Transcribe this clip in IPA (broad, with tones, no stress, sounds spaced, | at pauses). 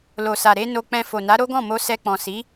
l o˨ s a˨ ɾ e˧ n o˧ k͡p ɛ̃˧ f o˨ n a˨˦ ɾ o˦ ɡ ɔ̃˦˨ m o˧ s ɛ˧ k͡p ɔ̃˨ s i˨˦